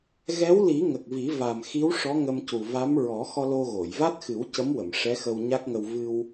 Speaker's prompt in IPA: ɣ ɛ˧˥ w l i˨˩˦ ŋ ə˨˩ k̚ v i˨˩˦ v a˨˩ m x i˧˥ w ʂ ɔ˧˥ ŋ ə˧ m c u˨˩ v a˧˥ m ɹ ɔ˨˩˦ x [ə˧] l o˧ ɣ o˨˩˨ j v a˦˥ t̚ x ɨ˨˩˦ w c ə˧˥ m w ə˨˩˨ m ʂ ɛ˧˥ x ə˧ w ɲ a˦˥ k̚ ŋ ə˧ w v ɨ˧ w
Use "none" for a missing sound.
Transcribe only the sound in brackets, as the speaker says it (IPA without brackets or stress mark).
ɔ˧